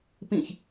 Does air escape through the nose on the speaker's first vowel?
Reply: yes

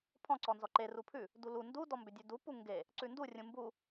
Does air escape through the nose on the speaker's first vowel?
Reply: yes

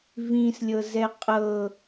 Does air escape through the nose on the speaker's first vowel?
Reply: yes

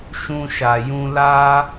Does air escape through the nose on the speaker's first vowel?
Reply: yes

